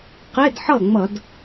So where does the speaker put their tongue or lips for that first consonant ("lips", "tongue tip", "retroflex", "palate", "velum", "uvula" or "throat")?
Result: uvula